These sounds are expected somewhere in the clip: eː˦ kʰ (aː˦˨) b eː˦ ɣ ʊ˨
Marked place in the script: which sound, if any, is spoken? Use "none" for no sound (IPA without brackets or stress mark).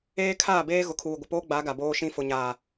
aː˦˨